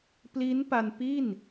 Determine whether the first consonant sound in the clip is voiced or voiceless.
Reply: voiceless